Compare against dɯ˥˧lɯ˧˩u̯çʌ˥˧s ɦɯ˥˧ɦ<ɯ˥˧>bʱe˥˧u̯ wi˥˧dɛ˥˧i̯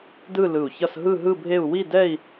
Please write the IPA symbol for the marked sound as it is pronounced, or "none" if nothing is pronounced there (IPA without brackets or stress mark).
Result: ɯ˥˧